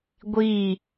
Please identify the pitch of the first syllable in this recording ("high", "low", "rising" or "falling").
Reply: falling